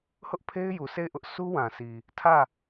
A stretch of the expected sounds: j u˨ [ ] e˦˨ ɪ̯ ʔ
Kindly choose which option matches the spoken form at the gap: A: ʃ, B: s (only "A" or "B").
B